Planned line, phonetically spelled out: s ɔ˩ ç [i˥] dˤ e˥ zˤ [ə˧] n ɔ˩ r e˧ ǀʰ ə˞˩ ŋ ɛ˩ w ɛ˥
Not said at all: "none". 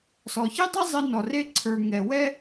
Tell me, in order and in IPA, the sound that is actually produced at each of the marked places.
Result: i˥, ə˧

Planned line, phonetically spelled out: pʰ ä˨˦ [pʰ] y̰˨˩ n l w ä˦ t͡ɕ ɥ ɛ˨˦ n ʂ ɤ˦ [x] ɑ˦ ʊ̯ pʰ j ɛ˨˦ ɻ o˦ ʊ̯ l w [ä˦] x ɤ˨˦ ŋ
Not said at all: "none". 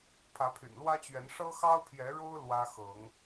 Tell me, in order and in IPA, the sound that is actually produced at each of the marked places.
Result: pʰ, x, ä˦

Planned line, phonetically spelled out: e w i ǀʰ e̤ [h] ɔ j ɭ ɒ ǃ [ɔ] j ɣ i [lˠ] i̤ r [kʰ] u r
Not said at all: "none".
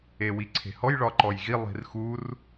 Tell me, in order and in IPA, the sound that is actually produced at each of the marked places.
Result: h, ɔ, lˠ, x

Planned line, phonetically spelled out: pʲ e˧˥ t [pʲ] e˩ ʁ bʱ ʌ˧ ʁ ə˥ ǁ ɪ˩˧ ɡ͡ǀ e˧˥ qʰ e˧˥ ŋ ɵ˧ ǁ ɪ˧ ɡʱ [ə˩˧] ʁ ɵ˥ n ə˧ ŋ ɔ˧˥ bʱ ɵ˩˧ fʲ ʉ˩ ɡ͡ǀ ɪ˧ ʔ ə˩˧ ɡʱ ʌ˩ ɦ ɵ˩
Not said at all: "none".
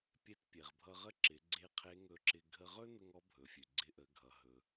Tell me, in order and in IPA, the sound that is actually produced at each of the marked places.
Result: pʲ, ə˧

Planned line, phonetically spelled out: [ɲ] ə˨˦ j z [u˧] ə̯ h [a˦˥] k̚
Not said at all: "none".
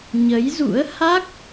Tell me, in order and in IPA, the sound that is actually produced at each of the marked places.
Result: ɲ, ṵ˧˥, a˦˥

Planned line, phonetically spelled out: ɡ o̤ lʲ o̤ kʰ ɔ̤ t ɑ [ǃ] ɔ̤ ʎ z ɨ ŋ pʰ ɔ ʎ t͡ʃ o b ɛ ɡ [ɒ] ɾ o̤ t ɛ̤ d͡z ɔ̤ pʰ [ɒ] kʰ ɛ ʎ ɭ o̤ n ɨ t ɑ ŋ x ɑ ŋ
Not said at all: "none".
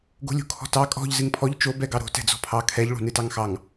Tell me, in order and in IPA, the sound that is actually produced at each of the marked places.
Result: kʼ, ɑ, ɑ

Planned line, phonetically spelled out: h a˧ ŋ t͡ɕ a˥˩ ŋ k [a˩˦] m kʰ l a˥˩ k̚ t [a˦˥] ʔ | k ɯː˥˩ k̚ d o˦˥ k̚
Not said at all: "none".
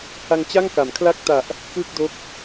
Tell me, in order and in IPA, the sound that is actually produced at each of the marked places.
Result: a˩˦, a˨˩

